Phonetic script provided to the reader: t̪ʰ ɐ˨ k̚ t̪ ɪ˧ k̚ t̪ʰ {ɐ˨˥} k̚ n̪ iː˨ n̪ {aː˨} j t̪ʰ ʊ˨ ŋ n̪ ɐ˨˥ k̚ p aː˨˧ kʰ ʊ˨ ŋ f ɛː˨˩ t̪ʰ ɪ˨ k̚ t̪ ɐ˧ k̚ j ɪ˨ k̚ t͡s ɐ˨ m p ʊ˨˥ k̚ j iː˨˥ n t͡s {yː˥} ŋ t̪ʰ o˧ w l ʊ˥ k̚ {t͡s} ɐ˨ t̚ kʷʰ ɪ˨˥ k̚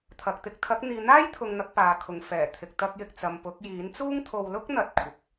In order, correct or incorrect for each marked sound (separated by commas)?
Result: correct, incorrect, incorrect, incorrect